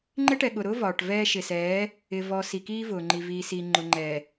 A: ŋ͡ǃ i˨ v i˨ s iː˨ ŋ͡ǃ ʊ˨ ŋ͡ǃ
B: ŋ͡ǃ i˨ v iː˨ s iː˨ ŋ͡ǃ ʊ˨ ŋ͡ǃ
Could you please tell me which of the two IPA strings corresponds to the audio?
B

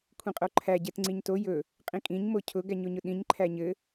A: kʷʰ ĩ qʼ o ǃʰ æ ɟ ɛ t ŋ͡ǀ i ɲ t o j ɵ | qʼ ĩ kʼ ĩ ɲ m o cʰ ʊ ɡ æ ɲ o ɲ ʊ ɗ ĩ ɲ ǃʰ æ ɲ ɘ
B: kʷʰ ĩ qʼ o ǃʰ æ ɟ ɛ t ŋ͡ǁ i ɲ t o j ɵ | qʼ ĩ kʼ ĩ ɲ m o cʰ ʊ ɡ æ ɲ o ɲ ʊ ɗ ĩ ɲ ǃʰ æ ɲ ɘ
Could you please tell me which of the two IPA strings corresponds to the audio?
A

